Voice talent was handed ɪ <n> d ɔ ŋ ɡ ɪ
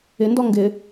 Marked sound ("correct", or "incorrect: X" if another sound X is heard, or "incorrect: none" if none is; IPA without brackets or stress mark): correct